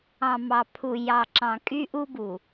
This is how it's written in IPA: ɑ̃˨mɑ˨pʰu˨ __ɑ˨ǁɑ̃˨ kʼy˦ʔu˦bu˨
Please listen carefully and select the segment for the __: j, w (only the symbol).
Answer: j